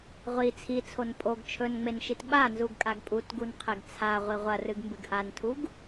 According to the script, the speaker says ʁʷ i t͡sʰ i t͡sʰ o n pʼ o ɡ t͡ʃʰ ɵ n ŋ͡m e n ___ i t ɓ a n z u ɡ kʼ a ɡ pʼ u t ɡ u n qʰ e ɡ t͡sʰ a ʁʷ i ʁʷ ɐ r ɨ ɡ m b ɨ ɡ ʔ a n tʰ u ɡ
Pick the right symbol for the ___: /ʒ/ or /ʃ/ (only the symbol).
ʃ